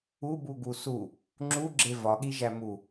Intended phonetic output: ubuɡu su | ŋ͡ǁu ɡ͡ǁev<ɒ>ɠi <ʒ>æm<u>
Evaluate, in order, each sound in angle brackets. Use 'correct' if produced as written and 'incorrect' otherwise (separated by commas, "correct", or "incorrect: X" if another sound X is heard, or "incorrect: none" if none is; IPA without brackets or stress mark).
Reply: correct, correct, correct